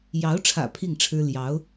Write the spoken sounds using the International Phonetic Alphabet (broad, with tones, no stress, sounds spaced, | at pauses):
j ɑ˧˥ ʊ̯ ʈ͡ʂʰ ä̰˨˩ pʰ i˥˩ ŋ ʈ͡ʂʰ ɻ̩˥ l j ɑ˧˥ ʊ̯